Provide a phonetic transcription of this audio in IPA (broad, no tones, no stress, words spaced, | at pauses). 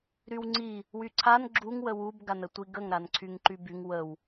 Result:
ɾywŋ͡ǀi | wyǀʰan ɡ͡ǁuŋ wəwub ɡanətʷiɡəŋ ɾanǀʰyŋǃybyŋ wəw